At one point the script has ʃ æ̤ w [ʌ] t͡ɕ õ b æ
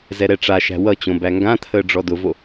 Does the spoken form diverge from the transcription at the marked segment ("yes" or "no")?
no